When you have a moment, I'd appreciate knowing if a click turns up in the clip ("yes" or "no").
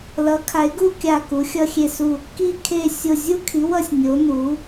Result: no